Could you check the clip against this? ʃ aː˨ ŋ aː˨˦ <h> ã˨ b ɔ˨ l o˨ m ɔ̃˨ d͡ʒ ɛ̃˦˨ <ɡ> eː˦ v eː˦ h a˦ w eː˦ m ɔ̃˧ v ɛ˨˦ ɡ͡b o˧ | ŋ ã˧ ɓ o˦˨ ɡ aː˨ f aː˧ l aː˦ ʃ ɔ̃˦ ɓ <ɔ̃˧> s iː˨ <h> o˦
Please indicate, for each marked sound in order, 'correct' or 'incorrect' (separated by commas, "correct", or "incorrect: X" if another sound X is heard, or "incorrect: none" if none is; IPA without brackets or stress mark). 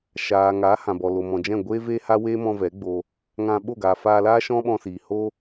correct, incorrect: ɡʷ, correct, correct